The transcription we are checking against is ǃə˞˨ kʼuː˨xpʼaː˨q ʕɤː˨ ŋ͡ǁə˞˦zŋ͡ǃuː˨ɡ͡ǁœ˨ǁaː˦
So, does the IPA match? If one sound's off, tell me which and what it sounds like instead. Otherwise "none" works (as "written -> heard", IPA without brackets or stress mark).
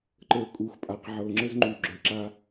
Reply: none